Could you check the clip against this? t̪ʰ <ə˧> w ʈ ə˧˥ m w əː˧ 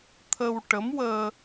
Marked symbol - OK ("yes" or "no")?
yes